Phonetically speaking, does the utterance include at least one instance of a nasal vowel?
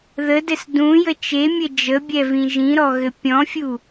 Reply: yes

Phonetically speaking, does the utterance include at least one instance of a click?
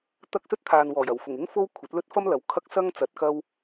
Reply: no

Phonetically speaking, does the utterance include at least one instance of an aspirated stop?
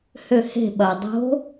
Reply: no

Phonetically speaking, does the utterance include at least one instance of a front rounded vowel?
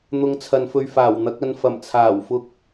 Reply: no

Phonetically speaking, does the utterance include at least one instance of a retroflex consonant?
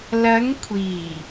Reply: no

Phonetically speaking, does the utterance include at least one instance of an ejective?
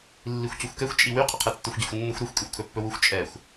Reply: yes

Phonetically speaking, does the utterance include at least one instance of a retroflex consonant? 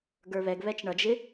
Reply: yes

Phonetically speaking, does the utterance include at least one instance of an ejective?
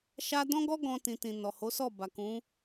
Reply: no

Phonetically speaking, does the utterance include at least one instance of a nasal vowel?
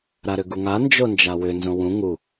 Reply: yes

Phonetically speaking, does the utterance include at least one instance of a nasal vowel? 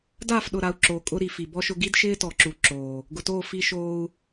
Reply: no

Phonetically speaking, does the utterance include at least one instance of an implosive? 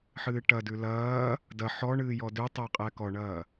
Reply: no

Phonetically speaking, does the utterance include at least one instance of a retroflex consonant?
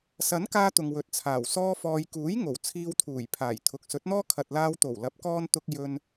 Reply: no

